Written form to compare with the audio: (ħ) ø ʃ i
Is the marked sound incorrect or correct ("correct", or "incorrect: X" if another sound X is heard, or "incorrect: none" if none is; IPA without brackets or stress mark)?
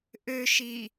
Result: incorrect: ʔ